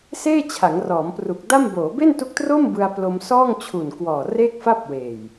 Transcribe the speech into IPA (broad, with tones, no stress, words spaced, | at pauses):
seː˥˩t͡ɕʰa˩˦ŋ rɔː˩˦mpru˨˩k̚da˥˩m boː˩˦be˥˩ntu˦˥k̚tro˥˩m bɯ˧a̯plo˧m sɔː˥˩ŋt͡ɕʰu˨˩nkwɔː˨˩ re˥˩k̚fa˥˩p̚weː˨˩j